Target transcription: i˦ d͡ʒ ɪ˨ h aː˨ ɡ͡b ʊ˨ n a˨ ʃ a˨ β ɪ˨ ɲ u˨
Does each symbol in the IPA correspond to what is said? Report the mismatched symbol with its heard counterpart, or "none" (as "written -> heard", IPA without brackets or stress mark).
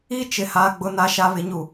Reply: d͡ʒ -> t͡ʃ